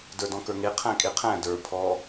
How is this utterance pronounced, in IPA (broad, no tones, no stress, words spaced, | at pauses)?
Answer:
də˞dɔ̃kə˞ŋe qʰæ̃kʼeqʰæ̃ də˞ pʰɔ